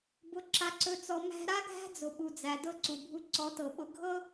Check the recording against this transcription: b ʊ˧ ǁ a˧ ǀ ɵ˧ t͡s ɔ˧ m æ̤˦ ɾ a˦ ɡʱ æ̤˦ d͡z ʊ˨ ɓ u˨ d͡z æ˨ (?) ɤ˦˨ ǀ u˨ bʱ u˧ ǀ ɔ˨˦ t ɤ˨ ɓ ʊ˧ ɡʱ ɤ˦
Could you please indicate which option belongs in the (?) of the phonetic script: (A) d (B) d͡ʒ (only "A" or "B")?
A